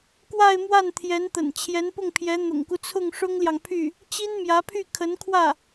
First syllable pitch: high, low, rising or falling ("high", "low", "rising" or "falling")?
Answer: falling